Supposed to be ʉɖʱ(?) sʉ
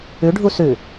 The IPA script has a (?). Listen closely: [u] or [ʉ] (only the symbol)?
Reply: u